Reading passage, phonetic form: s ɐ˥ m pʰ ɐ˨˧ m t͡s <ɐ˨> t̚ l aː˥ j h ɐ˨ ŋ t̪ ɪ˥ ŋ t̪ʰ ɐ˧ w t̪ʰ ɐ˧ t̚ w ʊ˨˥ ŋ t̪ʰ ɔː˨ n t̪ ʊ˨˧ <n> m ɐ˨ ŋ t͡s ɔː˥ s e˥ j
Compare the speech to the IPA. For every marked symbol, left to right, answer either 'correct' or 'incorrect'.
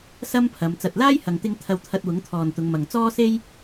correct, incorrect: ŋ

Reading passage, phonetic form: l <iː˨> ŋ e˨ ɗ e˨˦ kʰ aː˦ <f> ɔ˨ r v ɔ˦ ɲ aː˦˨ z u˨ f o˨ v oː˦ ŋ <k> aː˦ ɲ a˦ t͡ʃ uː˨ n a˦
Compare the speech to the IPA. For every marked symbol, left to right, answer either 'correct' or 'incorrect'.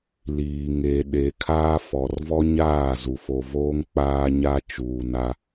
correct, correct, incorrect: k͡p

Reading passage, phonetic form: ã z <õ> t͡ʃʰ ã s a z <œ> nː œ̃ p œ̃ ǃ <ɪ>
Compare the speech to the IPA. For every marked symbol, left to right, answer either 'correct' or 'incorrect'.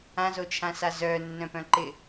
incorrect: o, correct, correct

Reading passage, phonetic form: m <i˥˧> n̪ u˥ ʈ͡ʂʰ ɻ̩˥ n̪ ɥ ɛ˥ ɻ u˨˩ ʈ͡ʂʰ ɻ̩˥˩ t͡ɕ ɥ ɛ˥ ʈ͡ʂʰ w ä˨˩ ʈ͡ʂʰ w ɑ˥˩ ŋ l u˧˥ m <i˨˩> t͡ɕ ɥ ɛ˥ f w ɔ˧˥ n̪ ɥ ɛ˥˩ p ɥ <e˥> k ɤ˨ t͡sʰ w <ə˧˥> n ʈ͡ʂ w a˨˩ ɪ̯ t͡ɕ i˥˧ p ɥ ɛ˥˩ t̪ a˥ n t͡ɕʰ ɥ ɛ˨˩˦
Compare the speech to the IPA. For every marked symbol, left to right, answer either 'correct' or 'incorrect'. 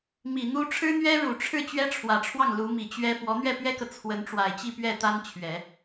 incorrect: i˨˩, correct, incorrect: ɛ˥, correct

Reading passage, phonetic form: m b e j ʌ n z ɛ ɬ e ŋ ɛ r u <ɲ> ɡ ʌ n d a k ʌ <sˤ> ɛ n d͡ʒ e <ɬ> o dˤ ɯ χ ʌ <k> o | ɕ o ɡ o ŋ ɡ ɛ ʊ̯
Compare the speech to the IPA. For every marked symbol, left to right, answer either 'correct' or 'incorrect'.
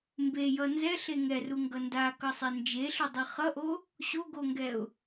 incorrect: ŋ, correct, correct, incorrect: ʔ

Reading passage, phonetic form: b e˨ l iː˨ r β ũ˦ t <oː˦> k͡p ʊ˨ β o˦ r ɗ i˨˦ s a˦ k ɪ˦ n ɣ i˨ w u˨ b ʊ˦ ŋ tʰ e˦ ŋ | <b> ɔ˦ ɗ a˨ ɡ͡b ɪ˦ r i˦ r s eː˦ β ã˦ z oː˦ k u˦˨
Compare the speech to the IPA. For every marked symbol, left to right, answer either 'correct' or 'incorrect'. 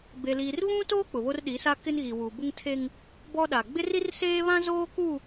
correct, correct

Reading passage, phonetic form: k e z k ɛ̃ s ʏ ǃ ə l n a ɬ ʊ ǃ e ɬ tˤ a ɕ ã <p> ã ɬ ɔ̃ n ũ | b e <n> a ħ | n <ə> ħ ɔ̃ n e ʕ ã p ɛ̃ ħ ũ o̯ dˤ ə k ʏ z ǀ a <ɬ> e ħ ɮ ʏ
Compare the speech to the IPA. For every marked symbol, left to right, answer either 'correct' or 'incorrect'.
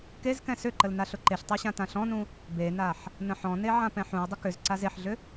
incorrect: t, correct, incorrect: ə̃, incorrect: z

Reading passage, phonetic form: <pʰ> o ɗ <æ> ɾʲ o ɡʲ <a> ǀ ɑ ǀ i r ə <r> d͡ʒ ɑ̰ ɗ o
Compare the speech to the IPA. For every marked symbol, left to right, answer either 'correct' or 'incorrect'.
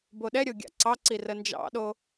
incorrect: b, incorrect: ɛ, incorrect: a̰, incorrect: n

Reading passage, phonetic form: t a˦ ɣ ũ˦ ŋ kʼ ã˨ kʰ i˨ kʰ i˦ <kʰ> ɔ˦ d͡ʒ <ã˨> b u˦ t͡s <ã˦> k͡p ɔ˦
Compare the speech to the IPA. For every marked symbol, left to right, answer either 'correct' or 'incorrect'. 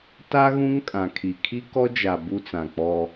incorrect: k, incorrect: a˨, incorrect: ã˨

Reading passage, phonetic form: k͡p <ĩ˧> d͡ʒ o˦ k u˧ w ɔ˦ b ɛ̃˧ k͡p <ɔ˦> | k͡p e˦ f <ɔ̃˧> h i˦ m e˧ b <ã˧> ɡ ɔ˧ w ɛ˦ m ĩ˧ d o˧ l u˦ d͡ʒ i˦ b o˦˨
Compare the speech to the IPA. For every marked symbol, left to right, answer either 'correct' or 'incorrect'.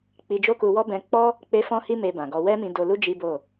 incorrect: i˧, correct, incorrect: ɔ̃˦, incorrect: ã˨

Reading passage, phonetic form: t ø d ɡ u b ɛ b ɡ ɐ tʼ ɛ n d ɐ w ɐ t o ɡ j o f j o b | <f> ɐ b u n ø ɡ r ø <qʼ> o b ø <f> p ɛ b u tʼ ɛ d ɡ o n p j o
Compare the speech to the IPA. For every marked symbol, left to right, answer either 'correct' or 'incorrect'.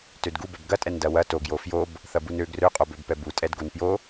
incorrect: θ, correct, incorrect: b

